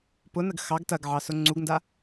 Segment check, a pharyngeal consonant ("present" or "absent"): present